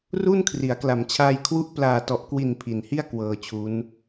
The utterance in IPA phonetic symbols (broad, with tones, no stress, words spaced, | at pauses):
ru˥˩n kʰri˩˦a̯kla˨˩mt͡ɕʰaː˧jkʰwu˦˥ʔ plaː˨˩tɔ˨˩ʔkwi˨˩n pʰi˨˩nhi˥˩a̯ kwɤː˧t͡ɕʰu˦˥n